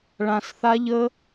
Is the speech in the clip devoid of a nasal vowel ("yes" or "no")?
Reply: no